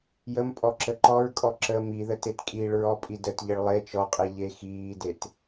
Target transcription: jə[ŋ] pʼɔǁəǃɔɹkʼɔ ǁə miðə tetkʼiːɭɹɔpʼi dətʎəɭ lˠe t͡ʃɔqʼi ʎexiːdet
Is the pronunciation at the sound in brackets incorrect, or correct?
incorrect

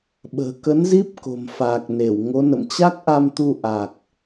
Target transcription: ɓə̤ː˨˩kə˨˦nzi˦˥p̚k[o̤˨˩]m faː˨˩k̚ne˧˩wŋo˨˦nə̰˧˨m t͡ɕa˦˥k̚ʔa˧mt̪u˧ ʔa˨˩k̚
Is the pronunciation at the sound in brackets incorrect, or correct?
correct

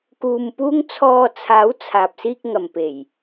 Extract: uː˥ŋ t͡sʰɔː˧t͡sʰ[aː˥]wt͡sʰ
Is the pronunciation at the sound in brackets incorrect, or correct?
incorrect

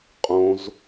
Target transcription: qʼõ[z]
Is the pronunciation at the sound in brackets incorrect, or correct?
correct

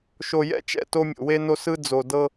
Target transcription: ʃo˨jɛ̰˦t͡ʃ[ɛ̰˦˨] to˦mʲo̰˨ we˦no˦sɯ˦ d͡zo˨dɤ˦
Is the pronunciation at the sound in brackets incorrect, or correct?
correct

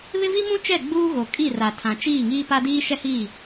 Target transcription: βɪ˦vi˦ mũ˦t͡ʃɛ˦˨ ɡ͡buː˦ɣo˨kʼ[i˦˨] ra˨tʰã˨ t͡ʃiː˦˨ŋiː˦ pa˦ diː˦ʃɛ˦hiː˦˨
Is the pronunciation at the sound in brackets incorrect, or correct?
correct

